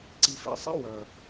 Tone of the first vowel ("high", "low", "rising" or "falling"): low